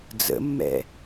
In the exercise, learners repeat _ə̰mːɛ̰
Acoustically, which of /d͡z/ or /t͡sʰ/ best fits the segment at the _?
d͡z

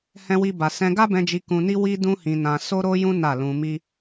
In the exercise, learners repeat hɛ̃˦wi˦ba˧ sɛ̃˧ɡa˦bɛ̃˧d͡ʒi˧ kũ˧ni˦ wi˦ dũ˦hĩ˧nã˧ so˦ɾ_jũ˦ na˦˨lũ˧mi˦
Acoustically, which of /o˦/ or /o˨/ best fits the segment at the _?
o˦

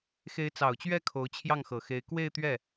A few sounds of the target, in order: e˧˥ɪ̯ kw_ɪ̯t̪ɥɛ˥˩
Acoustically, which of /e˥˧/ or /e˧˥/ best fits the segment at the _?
e˥˧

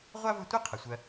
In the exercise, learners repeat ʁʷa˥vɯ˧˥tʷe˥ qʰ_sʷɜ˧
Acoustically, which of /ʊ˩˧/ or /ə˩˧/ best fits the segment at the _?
ə˩˧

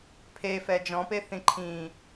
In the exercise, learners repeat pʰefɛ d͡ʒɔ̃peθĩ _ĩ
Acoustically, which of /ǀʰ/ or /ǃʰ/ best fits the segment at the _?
ǃʰ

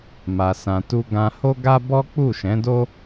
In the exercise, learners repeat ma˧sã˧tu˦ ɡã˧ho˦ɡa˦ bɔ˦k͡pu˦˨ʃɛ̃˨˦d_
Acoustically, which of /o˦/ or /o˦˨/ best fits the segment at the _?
o˦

